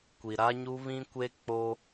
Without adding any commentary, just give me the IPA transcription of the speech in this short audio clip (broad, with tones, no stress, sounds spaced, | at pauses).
kʷ i˨ ɾ a˦ ɲ u˦ β ĩ˦ kʷ e˦ k͡p o˦